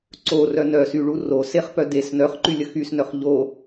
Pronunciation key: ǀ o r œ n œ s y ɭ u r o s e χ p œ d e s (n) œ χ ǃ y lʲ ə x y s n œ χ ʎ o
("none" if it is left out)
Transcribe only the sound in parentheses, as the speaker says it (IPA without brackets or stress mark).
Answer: n